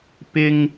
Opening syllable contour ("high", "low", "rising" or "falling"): high